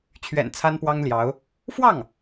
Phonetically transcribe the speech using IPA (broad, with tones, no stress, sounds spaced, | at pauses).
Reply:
t͡ɕʰ ɥ ɛ̰˨˩ n t͡sʰ a˥ n p w ɑ˥ ŋ l j ɑ˧˥ ʊ̯ | f w ɑ˥˩ ŋ